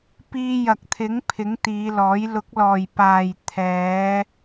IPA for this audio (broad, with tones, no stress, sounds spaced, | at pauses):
p iː˧ j ɐ˨ k̚ t̪ʰ ɪ˨˥ ŋ pʰ ɪ˨˥ ŋ t̪ iː˨˧ l ɔː˨˥ j l ʊ˨˥ k̚ l ɔː˨ j p aː˨ j t̪ʰ ɛː˨˧